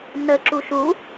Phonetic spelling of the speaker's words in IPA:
n ə ǁ u ʃ u

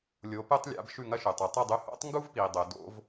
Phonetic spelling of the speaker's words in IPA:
lʲ o˩˥ p ɨ˥ tˤ lʲ a̰˩˥ b ʃ ʉ˥˩ ŋ ɐ˥ ʃ ʉ˩ tˤ ɵ˩ tˤ ɵ˥˩ dˤ ʉ˧ h o̰˥ tˤ ŋ ɡ u˥ v p i˩ dˤ ɵ˩ d o̰˥ v

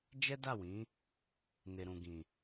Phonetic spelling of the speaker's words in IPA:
d͡ʒ ɛ˦ d a˦˨ w ĩ˨˦ | n e˨ ɾ ũ˨ ɡ ĩ˨

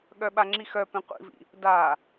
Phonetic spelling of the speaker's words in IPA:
ɠ œ ɓ a ŋ͡ǁ i x œ p ẽ qʷ ḭ v ḭ | d a

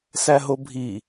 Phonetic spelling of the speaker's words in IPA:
s æ ɦ o bʱ i

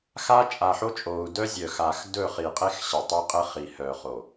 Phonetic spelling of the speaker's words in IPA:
x a˦ t͡ʃʼ a˨ ħ o˦ t͡ʃʼ o˨ u̯ d œ˦ zʲ œ˨ x a˨ x d ɵ˦˨ χ i˨ qʼ e˦ x ɕ ə˨ tˤ ɘ˦ qʼ ɘ˦ χ i˨ h œ˨ χ o˨

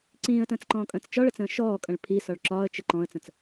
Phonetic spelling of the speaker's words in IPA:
ǀ ĩː ə̯ t ə̃ː t͡s ǃ ɔ̃ː kʼ ə̃ː t͡s t͡ʃ ɒ ɭ ə t͡s ə̃ː ʃ ɔː kʼ ə̃ ɭ pʰ i s ɒ ɭ ǁ ɒː ə̯ t͡ʃ ə ǃ ɔ̃ ə̯ t͡s ə̃ t͡s

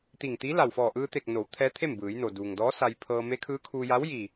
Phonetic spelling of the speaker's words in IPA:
t̪ i˧˩ ŋ t̪ i˧˥ l a˧˩ w f ɔː˧˩ ʔ ɯː˧ t̪ e˧˩ k̚ n o˩˧ w t̪ʰ ɛː˧˥ t̪ʰ e˥˨ m b ɯː˩˧ j n o˩ d uː˩ ŋ d ɔː˧˥ s a˧ j pʰ ɤː˧ m e˧˥ kʰ ɯː˧˥ kʰ uː˧ j a˧˥ w j i˧˩

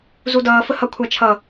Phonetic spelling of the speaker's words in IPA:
z u d ʌː f ə h ʌ kʷʰ a t͡ʃʰ ʌ

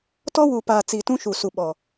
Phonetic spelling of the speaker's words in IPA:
t ɔ˦ w u˨ p aː˨ t͡s i˨ t ũ˦ ʃ u˨ s u˨ ɓ ɔ˨

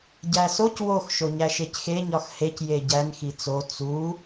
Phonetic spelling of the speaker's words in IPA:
ɟ æ s o c w o x ʃ o ɲ æ ʃ e c x e ɲ ɒ x h e c j e ɟ æ n x i t͡s o t͡s u

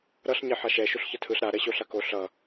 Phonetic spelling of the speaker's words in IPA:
ɾ ʌ ɬ ɲ ɛ ħ a ʃ ɛ ʃ u ɬ ç ʌ tʰ ɯ ɬ ɾ a ɾ ɛ ɕ o ɬ a k o ɬ ʌ

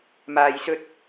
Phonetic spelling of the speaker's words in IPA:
m aː˨ j s ɵ˧ t̚

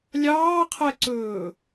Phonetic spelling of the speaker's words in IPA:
lʲ ɑː qʰ ɛ ǀ ɵː

